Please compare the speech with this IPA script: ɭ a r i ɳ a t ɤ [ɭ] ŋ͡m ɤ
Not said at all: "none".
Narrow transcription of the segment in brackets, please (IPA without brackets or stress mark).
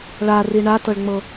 ɭ